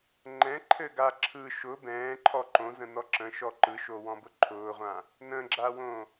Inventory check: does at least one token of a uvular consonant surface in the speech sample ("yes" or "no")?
yes